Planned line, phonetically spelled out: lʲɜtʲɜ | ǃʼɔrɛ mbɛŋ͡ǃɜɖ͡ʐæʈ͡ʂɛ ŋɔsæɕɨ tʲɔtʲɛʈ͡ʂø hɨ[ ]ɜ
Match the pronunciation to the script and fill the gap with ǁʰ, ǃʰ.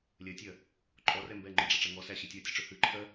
ǃʰ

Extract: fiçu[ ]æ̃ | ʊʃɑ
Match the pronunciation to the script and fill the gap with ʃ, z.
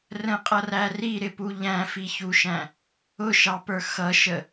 ʃ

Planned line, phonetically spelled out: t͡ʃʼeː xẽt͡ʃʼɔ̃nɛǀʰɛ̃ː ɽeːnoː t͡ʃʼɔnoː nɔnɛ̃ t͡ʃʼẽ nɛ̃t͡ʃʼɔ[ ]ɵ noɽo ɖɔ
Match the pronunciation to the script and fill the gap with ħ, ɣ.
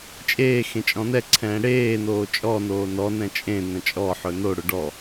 ħ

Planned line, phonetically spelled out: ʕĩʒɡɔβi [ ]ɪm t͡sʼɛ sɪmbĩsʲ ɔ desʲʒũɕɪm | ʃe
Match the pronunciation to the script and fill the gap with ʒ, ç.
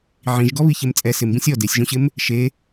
ç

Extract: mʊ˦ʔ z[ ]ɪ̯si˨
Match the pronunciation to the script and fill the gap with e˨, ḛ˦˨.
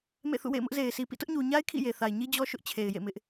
e˨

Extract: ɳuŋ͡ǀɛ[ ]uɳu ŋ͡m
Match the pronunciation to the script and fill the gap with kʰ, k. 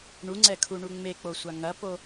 kʰ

